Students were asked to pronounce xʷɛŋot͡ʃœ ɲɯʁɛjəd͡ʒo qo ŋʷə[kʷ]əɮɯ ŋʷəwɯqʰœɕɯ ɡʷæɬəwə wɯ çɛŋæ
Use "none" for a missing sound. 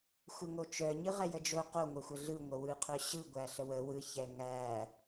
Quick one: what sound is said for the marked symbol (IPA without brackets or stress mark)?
xʷ